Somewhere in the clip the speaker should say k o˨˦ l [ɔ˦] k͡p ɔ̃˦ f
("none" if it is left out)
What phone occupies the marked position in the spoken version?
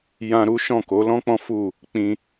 ɔ̃˦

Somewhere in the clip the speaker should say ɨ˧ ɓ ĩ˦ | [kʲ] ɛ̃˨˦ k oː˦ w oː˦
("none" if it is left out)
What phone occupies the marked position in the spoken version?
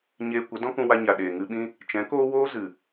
t͡ʃ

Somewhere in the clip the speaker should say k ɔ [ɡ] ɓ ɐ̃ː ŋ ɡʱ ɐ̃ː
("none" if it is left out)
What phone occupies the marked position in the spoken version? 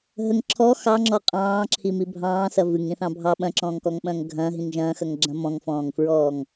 ŋ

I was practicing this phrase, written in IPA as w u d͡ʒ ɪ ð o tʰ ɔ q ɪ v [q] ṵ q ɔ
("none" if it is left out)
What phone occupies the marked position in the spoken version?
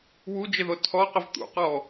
t̪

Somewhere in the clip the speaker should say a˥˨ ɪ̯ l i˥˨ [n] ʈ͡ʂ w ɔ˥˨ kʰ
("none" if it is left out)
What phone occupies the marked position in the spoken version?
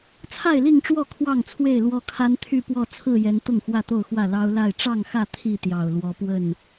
ŋ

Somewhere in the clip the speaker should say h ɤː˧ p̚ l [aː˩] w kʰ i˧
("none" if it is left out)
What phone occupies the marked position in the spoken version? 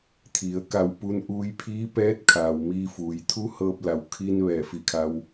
a˩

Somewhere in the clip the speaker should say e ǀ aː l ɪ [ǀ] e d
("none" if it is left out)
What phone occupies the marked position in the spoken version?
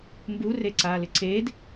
ǀ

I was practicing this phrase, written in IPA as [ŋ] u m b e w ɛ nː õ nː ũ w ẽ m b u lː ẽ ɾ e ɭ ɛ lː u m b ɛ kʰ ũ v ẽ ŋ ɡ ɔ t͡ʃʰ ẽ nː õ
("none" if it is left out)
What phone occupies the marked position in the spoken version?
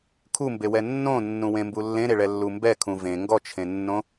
kʰ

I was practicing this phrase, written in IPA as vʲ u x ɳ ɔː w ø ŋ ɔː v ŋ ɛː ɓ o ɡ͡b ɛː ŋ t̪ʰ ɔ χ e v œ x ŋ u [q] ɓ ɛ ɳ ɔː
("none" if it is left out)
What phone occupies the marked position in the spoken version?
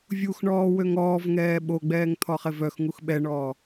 x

